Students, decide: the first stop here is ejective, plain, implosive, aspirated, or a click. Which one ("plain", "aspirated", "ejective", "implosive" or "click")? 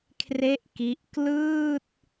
aspirated